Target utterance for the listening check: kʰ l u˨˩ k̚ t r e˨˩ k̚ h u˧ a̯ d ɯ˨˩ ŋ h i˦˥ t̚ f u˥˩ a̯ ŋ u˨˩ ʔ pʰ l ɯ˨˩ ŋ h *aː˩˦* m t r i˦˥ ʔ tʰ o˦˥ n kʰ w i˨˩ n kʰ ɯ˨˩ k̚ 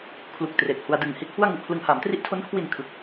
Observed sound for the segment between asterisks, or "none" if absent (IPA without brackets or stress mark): aː˩˦